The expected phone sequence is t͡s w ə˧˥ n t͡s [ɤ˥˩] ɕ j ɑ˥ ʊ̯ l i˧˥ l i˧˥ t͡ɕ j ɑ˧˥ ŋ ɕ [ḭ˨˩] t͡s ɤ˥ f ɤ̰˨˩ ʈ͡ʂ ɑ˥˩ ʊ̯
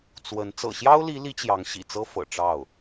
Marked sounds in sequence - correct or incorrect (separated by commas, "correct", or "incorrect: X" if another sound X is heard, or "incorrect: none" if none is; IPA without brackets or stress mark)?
incorrect: ɤ̰˨˩, correct